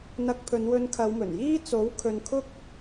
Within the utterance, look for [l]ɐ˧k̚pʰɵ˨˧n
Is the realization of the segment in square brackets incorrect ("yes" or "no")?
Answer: yes